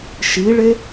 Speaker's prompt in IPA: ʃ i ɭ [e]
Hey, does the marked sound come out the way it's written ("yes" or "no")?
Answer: yes